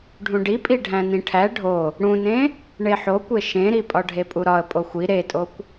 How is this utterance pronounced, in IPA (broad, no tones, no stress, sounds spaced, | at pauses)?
ɖʱ ũ ɖ i pʼ i ɖʱ æ̃ n ĩ ʈʰ æ ɖʱ o | ɽ ũ n ẽ | ɳ e ħ o kʷ e ʃ ẽ ɾ i pʼ ɒ ɖʱ e pʼ u ɾ ɒ ə̯ pʼ o xʷ i ɾ e tʼ o kʷ